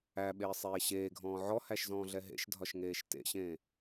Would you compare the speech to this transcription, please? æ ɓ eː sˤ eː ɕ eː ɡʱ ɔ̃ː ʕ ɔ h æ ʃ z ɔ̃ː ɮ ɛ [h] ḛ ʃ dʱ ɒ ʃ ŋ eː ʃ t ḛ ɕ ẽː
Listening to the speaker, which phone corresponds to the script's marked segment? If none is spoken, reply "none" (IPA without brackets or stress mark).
ɦ